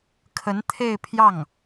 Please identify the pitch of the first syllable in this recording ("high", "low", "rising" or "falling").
rising